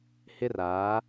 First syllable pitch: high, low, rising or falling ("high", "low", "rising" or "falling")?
high